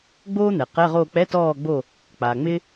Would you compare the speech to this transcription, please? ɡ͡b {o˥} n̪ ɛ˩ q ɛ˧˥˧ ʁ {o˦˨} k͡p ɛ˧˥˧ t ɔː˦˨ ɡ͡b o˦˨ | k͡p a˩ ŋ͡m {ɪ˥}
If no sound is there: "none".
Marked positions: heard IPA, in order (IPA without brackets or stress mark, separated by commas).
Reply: oː˥, o˦˨, ɪ˥